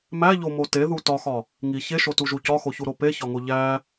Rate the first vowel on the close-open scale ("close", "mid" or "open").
open